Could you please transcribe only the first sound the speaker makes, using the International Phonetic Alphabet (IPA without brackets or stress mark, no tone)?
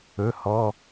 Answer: ɵ